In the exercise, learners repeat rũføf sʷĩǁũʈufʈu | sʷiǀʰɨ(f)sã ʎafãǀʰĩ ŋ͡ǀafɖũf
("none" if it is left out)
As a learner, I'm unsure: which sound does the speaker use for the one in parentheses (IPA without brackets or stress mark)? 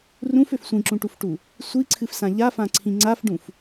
f